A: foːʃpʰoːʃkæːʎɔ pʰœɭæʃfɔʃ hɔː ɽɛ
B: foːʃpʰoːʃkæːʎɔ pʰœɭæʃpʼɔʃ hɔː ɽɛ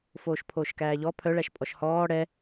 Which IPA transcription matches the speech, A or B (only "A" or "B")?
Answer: B